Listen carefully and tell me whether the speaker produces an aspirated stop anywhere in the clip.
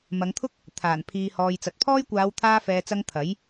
yes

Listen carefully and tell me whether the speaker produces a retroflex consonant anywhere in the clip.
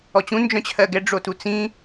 yes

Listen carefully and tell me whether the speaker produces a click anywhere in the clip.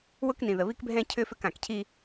no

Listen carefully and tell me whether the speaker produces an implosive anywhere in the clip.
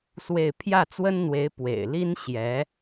no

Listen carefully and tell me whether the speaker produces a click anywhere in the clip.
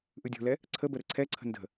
yes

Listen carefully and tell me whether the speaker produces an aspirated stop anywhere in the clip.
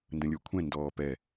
yes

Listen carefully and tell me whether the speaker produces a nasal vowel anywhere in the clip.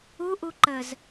no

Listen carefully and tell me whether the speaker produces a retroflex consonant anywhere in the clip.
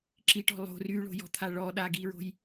yes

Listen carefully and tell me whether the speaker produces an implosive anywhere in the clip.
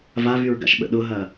yes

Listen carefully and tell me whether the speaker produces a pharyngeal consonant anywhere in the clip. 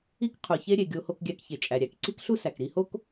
no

